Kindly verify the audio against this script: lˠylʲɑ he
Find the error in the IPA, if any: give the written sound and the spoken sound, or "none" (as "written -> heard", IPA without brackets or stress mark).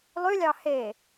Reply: none